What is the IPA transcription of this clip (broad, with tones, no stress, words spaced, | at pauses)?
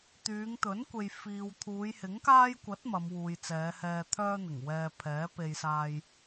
t̪yː˨˧ŋt̪ɵ˨˥nkʷe˨j fiː˨w t̪ʰuː˨˧jhɪ˨˥ŋkaː˥j kʷɐ˨˥t̚ mɐ˨˧mwuː˨jt͡sɛː˨˧hɛː˧ t̪ʰœː˥n̪ɪ˨˩ŋwɛː˧ pʰɛː˨˥pe˧jsaː˧j